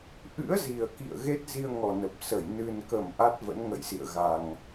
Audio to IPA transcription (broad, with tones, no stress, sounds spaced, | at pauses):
ʔ ɨ̰˧˥ ə̯ z i˨˩ ə̯ k ḭ˧˨ ə̯ ɣ e˦˥ t̚ z i˧ ə̯ ŋ ɔ˨˩ n ə˨˩ p̚ s ə˧˩ j n ɨ˨˩ n k ə˧˩ m ʔ a˦˥ t̚ v ə̰˧˥ n ŋ ə̰˧˨ j s ḭ˧˨ ə̯ ɣ a˨˩ ŋ